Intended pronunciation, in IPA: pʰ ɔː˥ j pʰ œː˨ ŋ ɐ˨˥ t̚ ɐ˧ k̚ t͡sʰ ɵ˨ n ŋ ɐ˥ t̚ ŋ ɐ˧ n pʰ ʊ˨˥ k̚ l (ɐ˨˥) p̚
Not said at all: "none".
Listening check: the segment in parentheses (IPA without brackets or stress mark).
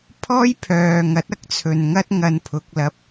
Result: ɐ˨